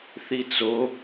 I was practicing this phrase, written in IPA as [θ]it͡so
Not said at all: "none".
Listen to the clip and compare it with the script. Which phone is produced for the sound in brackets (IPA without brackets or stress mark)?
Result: θ